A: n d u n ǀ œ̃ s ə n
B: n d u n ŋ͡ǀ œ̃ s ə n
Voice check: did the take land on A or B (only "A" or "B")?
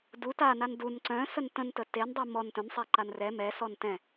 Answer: A